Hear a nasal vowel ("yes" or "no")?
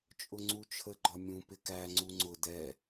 yes